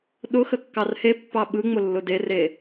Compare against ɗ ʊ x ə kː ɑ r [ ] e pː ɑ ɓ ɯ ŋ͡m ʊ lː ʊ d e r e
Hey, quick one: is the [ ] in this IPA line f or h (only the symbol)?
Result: h